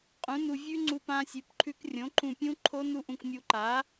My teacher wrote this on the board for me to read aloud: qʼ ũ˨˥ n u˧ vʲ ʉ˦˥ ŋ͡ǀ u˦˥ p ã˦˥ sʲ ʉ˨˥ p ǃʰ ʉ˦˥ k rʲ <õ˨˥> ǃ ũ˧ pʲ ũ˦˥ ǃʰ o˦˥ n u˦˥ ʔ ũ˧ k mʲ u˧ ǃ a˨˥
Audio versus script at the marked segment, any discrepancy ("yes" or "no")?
no